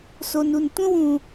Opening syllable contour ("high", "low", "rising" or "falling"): low